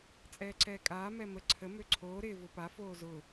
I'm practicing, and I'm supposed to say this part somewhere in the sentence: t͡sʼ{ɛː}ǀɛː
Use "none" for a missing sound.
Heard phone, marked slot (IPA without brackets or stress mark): ɛː